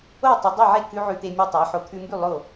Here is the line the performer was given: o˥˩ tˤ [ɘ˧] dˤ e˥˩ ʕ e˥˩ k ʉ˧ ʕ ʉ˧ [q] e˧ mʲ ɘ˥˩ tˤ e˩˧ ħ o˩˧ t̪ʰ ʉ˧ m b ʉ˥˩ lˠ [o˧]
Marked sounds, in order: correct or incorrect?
correct, incorrect: t̪, incorrect: o˥˩

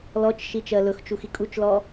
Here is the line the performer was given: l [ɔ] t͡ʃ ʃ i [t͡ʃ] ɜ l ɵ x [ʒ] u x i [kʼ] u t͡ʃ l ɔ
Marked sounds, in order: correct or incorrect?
correct, correct, incorrect: t͡ʃ, correct

